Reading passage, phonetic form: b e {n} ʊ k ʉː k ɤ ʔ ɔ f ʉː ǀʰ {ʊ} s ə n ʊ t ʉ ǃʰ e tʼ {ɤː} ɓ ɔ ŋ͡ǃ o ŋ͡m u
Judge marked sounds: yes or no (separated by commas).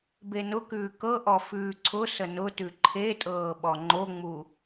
yes, yes, yes